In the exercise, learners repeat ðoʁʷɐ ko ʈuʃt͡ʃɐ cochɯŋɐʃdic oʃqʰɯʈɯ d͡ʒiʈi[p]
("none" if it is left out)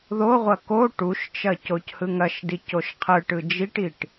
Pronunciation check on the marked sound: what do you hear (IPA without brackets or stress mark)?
ʈ